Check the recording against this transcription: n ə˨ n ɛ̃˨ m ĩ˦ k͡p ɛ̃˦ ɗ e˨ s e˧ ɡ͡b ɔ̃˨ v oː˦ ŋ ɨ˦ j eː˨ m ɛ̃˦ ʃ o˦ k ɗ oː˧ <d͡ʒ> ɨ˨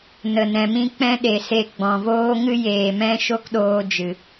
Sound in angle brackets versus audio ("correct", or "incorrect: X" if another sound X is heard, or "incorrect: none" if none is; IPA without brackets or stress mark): correct